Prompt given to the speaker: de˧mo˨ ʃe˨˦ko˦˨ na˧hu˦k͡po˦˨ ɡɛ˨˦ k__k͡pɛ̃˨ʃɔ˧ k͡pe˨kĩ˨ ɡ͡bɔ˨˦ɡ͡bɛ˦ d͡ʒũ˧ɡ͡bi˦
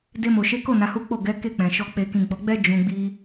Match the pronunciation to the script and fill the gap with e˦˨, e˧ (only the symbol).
e˦˨